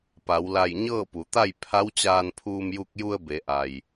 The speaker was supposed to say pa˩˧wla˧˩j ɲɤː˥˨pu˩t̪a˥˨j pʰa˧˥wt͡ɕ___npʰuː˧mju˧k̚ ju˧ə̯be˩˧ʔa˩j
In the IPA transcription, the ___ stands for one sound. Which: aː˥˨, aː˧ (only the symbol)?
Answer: aː˧